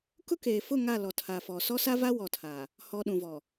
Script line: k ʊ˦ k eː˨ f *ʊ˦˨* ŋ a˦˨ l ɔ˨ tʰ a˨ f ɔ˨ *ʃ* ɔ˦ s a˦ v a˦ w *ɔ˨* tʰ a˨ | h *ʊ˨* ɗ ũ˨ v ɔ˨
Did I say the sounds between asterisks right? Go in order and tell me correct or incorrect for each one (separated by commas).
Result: correct, incorrect, correct, incorrect